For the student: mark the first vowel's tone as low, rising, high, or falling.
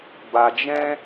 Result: low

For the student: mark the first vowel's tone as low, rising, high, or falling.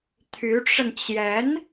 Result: rising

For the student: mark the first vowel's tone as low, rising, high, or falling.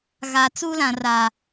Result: low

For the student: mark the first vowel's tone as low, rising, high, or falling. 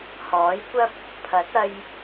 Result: rising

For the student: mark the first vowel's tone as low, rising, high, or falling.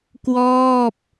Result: falling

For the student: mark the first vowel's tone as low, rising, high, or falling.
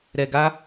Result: low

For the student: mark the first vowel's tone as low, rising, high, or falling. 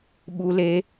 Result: high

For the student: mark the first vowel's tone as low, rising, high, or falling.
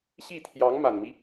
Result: falling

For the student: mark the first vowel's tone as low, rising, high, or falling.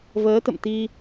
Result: rising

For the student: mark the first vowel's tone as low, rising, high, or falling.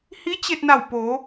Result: rising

